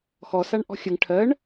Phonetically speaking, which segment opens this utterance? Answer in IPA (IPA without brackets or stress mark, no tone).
x